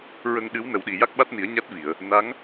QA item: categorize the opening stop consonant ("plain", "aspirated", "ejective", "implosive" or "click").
implosive